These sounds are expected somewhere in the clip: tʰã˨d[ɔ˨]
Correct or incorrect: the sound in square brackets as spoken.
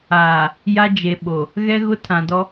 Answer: incorrect: ɔ˦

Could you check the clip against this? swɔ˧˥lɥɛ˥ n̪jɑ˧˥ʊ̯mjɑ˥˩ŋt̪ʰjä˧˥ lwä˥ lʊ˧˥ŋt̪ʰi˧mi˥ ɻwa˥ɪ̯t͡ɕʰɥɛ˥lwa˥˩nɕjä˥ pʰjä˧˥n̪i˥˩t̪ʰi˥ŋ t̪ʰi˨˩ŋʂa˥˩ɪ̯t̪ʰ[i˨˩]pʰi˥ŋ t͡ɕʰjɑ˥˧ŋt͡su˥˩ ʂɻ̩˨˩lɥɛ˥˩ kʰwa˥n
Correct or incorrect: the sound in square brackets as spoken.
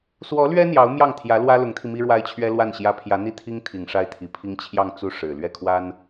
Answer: incorrect: i˧˥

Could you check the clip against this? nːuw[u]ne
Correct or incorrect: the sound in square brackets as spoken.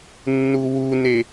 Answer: correct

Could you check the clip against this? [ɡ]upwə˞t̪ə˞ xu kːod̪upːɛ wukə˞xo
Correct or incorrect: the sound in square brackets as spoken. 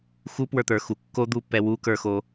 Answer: incorrect: x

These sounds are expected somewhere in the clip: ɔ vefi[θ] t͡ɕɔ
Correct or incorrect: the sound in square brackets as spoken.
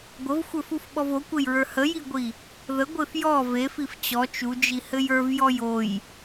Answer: incorrect: f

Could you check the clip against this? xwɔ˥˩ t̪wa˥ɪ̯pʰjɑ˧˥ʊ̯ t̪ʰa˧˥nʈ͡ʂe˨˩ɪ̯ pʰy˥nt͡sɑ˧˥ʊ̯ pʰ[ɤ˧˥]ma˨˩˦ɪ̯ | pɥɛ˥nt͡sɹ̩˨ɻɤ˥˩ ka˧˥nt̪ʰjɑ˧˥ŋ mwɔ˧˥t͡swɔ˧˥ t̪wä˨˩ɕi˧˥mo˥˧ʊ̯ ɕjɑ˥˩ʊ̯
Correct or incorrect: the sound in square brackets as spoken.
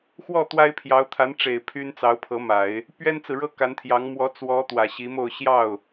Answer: correct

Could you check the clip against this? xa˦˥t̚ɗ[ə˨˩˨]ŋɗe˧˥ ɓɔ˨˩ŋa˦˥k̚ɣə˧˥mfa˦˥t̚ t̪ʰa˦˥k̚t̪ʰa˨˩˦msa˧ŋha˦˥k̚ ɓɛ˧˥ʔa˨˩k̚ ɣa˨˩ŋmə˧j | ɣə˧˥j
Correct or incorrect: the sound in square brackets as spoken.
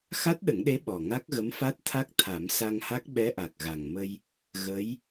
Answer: incorrect: ə˨˩˦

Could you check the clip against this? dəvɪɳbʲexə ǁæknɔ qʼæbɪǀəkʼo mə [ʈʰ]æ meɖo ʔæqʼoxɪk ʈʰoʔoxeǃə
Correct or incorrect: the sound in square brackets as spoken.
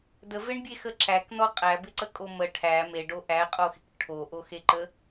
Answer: correct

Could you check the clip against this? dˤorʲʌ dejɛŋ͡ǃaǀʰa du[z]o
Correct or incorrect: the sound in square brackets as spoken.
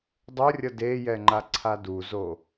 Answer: correct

